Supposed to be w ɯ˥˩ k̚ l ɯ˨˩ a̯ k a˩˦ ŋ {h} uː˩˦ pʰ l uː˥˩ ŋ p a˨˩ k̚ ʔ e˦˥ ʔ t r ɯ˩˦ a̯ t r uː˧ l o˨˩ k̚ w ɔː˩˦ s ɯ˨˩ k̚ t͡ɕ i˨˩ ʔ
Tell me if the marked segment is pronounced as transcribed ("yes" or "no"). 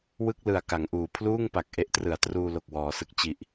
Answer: no